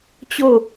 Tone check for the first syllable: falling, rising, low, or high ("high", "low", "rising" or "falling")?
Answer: falling